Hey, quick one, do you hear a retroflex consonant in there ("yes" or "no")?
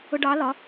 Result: yes